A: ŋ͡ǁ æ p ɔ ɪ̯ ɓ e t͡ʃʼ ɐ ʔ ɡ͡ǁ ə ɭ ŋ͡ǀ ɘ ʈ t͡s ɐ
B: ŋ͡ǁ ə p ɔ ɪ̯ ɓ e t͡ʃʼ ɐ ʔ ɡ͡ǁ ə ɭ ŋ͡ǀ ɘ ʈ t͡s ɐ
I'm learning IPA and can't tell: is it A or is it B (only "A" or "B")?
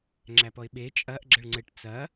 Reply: A